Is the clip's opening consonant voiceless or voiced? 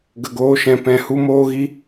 voiced